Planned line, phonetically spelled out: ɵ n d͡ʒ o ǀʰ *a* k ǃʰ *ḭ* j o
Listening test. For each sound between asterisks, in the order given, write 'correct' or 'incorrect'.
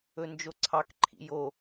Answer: incorrect: ɑ, correct

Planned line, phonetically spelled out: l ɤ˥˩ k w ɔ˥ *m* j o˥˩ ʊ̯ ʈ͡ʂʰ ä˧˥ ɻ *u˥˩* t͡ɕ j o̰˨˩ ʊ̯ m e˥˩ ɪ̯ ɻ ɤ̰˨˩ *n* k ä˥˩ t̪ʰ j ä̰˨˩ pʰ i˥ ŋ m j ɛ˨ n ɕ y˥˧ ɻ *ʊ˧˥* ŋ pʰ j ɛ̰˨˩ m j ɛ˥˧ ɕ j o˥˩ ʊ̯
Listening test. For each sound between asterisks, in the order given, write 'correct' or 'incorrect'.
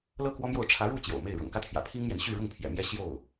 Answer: correct, correct, incorrect: ŋ, incorrect: ʊ˥˩

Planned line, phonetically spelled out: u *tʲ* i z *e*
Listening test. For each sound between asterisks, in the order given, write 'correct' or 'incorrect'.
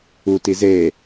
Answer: incorrect: t, correct

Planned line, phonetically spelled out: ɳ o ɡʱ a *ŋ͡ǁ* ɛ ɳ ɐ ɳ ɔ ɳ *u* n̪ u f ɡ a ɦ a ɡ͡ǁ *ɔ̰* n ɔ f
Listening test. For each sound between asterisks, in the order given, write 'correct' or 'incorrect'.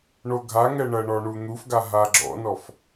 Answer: incorrect: ŋ, correct, correct

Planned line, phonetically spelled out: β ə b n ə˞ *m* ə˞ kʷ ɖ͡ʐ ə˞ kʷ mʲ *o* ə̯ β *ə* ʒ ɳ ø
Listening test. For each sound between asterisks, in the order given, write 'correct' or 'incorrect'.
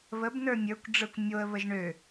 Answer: incorrect: mʲ, correct, correct

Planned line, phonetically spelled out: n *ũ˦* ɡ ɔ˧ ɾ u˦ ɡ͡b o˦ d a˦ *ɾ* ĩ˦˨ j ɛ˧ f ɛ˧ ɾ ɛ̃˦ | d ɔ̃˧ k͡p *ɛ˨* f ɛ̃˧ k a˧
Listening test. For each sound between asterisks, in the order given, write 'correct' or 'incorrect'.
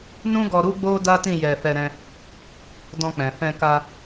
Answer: correct, incorrect: t, incorrect: ɛ̃˨

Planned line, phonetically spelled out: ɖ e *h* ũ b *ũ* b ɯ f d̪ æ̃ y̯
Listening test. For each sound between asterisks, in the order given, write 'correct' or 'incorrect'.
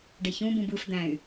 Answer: incorrect: ç, correct

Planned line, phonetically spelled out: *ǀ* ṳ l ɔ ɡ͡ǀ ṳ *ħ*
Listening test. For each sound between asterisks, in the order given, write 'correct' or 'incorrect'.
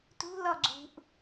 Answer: incorrect: t, incorrect: ʔ

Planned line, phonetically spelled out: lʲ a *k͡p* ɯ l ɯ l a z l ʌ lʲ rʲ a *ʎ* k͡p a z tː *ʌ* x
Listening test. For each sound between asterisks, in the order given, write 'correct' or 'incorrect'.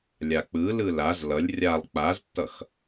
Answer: correct, incorrect: lˠ, correct

